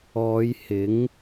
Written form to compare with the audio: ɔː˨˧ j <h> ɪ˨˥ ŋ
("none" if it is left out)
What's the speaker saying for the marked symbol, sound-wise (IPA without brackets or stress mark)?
h